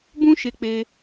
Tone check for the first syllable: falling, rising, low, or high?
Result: high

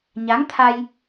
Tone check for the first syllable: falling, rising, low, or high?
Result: rising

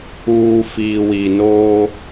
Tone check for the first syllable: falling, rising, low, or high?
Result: low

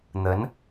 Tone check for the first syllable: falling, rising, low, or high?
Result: rising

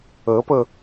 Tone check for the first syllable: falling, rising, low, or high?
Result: rising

